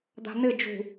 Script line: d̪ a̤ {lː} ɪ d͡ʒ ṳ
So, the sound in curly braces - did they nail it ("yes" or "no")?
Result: no